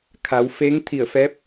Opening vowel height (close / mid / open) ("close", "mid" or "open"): open